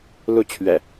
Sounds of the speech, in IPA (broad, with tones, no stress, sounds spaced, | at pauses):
l u˥˨ t͡ɕʰ ɥ ɛ̰˨˩